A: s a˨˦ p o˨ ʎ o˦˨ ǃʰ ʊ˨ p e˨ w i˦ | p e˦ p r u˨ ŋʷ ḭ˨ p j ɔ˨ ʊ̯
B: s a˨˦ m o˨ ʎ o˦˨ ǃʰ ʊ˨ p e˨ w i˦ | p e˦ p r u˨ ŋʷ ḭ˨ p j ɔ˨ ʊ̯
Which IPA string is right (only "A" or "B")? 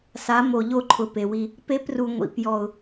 B